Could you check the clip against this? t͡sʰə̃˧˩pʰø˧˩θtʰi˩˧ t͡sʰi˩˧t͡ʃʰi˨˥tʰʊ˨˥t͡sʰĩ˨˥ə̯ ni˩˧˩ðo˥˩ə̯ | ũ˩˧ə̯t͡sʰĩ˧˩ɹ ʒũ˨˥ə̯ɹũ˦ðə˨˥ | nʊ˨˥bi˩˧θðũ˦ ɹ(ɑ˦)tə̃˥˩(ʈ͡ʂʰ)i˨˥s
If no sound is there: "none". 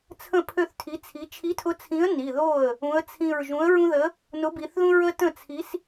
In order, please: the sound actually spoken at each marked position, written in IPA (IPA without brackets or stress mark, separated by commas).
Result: ə˦, t͡sʰ